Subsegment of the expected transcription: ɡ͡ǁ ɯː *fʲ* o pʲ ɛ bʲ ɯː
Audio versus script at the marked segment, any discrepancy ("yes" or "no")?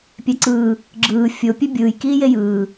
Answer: no